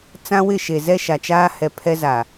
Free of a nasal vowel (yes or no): no